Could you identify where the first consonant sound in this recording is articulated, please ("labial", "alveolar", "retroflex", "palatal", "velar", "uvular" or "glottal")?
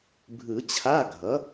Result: labial